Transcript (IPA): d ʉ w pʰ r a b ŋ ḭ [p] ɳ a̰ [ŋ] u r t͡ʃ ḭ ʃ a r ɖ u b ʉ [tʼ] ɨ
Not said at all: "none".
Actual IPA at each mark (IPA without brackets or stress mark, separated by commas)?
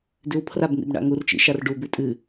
b, ŋ, tʼ